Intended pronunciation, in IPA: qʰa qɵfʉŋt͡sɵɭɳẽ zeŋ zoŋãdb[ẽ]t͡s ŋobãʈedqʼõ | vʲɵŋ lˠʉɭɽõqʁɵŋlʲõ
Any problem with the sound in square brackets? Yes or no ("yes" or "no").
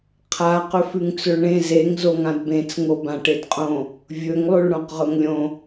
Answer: no